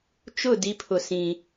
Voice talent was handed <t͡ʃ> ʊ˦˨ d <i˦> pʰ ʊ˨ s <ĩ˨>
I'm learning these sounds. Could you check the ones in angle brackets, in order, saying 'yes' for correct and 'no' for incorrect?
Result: yes, yes, yes

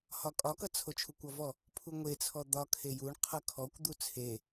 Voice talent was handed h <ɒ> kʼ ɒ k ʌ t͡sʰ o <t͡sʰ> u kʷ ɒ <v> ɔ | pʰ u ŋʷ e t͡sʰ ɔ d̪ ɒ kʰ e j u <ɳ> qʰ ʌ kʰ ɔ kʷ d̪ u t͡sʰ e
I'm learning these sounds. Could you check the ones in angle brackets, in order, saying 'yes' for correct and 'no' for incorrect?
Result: yes, no, yes, yes

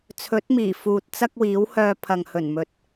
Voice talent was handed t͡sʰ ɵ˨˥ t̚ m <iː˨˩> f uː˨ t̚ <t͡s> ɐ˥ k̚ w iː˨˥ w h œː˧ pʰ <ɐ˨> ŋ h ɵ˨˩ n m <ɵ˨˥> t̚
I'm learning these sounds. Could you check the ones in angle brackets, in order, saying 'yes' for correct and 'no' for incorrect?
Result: yes, yes, yes, no

